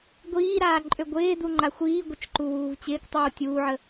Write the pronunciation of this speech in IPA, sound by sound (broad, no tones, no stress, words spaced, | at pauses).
ɡʷiːɾaːǃʼø ɡʷɪːduŋ͡ǃa xʷiːɡʷət͡ʃǃuwuːv t͡ɕɪːktˤuː tʲuːʕə